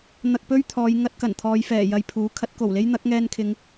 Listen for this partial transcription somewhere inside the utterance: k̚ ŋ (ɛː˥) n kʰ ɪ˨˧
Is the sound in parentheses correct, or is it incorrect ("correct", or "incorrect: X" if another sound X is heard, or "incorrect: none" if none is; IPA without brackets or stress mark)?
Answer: incorrect: ɛː˧